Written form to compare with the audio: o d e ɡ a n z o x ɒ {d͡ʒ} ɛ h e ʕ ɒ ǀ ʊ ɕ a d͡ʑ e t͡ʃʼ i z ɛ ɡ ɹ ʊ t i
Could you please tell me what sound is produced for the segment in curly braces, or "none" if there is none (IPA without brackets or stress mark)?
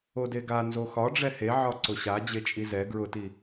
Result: ɖ͡ʐ